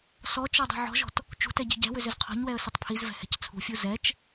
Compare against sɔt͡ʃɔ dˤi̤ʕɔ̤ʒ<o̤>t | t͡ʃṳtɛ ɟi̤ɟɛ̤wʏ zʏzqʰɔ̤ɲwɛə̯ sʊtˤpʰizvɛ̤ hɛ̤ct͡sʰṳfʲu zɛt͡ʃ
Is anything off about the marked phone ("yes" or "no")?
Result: yes